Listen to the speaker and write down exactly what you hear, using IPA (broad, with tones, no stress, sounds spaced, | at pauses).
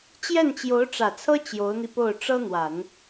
t͡ɕ j ɛ˥˩ n t͡ɕ j o˧˥ ʊ̯ ʈ͡ʂ ä˨˩ t͡sʰ ɤ˥ t͡ɕ j o˧˥ ʊ̯ n̪ i˧ p o˥˩ ʊ̯ ʈ͡ʂ ɤ˥ n̪ w a˨˩˦ n